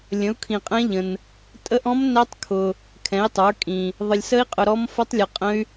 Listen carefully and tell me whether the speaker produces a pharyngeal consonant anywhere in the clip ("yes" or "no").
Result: no